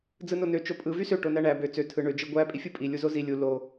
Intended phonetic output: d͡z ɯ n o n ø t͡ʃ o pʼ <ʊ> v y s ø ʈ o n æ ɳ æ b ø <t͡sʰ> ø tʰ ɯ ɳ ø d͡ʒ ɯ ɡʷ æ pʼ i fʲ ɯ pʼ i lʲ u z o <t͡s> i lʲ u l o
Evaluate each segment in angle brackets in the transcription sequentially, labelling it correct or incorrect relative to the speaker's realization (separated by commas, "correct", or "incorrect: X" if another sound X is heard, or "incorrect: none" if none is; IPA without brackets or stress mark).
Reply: incorrect: ɯ, incorrect: t͡s, incorrect: z